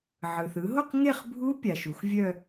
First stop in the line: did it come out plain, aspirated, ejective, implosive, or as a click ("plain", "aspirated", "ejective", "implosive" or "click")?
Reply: plain